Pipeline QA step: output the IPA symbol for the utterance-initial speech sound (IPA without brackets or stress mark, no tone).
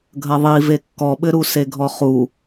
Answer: ɡʱ